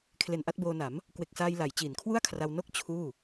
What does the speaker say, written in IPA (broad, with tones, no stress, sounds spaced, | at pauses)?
kʰ l e˨˩ n ʔ a˥˩ t̚ b oː˧ n a˩˦ m | k w e˨˩ k̚ s aː˧ j l a˩˦ j t͡ɕ iː˩˦ n kʰ w u˥˩ a̯ kʰ r a˧ w n o˥˩ k̚ t͡ɕʰ uː˥˩